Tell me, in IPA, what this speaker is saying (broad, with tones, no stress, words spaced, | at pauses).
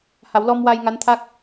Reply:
ha˨˩˦wlɔ˧mwa˧j ŋa˧˥nt̪ʰaː˦˥k̚